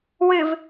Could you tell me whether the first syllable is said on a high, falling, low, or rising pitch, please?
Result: low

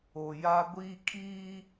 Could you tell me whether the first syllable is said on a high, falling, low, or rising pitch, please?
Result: low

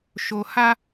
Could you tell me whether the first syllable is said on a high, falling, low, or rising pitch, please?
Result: low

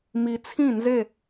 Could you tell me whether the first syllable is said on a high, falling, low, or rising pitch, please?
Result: low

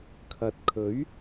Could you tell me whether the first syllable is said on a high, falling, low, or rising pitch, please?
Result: low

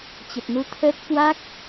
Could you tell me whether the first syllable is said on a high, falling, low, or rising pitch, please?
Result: low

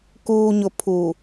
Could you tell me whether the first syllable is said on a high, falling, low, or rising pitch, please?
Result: low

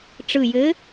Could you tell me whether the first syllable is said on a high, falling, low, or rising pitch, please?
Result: low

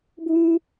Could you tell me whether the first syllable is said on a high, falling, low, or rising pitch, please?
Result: high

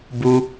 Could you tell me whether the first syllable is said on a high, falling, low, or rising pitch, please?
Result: high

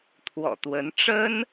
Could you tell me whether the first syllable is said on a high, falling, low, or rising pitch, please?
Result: low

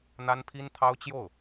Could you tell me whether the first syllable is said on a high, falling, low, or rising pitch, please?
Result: high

